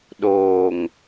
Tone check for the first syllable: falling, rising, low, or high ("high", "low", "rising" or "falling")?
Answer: low